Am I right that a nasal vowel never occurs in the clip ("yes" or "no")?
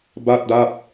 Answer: yes